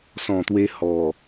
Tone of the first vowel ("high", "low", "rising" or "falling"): low